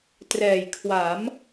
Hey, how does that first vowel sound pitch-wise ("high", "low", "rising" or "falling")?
low